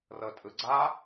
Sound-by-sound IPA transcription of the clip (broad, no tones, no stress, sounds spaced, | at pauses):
r ɤ tʼ ɯ ɡ͡ǀ a